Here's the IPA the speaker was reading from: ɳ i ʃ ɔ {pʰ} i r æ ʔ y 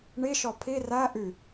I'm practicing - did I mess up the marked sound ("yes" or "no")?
no